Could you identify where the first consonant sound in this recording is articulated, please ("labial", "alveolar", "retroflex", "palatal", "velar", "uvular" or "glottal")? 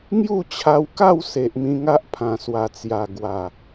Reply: velar